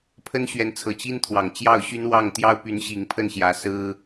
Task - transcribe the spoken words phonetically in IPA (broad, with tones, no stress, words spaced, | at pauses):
pʰə˥nɕɥɛ˧˥nt͡sʰɤ˨˩ t͡ɕi˥nt̪ʰwɑ˨˩ŋt͡ɕjɑ˥˩ʊ̯ɕy˥n wɑ˥˩ŋ t̪jɑ˥ʊ̯py˧˥n ɕi˧˥ŋpʰə˥˩nɕjä˧˥ sɹ̩˥